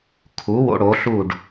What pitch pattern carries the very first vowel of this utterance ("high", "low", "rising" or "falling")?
rising